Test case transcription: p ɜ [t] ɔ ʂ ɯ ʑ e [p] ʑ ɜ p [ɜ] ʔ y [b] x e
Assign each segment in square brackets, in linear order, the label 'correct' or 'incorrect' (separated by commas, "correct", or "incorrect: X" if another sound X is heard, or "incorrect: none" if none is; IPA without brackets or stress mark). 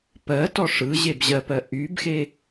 correct, incorrect: b, correct, correct